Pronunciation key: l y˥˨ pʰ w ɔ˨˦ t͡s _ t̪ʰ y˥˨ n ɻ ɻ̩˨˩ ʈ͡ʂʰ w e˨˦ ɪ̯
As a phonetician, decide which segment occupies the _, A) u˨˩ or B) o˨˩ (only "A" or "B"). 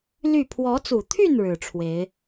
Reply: A